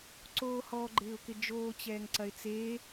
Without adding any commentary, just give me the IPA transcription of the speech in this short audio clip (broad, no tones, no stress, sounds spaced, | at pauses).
ǀ oː h ɔ ɡ͡ǃ ɪː ʊ̯ k ɪ d͡ʒ oː t͡ɕ ɛː ŋ ǀ ɐ ɪ̯ t͡s eː